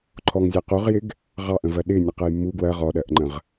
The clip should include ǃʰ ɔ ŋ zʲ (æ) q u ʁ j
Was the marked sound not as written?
no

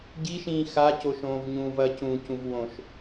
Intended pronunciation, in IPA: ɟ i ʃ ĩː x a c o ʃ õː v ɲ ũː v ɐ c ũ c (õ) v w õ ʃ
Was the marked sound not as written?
yes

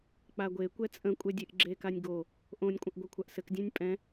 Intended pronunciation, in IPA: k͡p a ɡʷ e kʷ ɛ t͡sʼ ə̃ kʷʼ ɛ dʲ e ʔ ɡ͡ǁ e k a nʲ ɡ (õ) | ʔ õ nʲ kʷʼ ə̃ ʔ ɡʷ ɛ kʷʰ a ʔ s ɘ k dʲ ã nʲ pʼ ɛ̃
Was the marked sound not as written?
yes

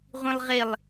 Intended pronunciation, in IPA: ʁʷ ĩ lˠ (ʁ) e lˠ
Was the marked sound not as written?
no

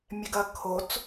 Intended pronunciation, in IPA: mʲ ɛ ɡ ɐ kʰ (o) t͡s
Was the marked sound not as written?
no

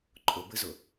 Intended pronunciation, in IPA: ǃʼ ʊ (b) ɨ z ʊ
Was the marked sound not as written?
no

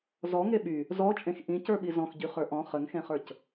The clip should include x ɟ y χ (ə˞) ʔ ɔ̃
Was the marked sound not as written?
no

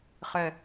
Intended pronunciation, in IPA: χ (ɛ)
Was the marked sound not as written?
no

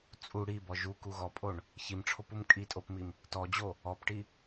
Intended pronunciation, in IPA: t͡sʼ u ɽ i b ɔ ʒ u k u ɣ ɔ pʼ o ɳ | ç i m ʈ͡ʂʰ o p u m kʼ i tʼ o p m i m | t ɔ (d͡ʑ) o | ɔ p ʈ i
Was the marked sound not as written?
no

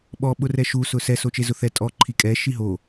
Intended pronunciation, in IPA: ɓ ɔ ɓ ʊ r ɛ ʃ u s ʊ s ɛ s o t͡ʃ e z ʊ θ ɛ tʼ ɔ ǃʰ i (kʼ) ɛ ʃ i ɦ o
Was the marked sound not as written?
no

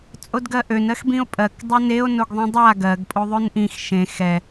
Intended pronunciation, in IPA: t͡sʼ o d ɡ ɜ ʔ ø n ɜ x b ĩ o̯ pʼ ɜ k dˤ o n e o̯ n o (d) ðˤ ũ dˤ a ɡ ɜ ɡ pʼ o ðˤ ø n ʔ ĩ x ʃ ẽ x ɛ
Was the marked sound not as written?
yes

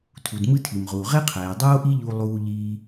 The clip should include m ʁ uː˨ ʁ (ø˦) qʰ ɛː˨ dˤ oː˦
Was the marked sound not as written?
yes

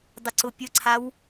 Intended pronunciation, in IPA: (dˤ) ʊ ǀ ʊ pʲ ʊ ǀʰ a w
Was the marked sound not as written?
no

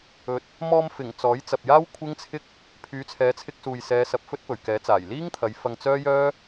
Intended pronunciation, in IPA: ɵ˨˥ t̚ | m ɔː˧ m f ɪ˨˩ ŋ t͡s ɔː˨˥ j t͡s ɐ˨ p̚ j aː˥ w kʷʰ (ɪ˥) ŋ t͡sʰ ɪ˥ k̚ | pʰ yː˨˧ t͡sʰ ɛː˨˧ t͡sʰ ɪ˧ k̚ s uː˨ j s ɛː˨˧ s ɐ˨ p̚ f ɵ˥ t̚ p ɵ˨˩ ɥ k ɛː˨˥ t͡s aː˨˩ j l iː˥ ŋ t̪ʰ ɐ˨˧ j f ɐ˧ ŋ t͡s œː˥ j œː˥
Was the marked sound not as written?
no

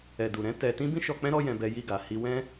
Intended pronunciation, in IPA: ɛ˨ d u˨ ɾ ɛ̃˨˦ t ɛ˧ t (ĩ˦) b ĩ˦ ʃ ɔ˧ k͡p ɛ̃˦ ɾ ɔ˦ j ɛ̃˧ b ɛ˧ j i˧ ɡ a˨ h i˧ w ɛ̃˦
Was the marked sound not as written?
no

